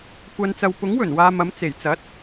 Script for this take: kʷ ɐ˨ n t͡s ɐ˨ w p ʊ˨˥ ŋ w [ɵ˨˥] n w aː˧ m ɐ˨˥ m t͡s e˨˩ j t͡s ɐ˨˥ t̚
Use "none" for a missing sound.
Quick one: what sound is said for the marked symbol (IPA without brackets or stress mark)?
ɵ˨˩